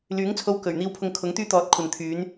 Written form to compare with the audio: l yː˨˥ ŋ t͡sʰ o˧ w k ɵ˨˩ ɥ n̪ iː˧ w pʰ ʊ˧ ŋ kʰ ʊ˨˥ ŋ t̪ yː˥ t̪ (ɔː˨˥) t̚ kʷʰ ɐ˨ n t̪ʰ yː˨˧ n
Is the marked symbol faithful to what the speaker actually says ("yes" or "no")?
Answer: yes